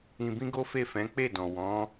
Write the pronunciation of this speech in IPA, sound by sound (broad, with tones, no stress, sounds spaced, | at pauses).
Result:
ĩ˧ b ĩ˦ ɡ o˦ f e˦˨ f ɛ̃˨˦ k͡p e˦˨ d ɔ̃˨ w ɔ̃˨˦